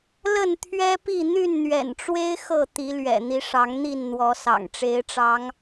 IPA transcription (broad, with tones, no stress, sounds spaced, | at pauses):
l ə˥˨ n t̪ʰ ɥ ɛ˦ p i˥˨ n̪ y˥˨ n n̪ ɥ ɛ̰˨˩ n ʈ͡ʂ w e˦ ɪ̯ x ɤ˥˨ t̪ i˨˦ l ɥ ɛ̰˨˩ n̪ i˨˦ ʂ ɑ˨˦ ŋ n̪ i˥˨ n n̪ w ɔ˨˦ s ɑ̰˨˩ ŋ ʈ͡ʂ e˨˦ ɪ̯ ʈ͡ʂ ɑ˨˦ ŋ